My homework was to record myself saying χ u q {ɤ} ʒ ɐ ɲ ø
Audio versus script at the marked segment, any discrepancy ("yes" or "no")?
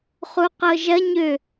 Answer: no